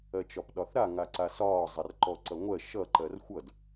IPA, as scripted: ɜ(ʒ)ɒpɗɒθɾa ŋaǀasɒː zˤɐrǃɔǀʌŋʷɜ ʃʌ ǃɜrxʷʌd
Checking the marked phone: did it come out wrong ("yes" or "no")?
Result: yes